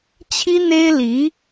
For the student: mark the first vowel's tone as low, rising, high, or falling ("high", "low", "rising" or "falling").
high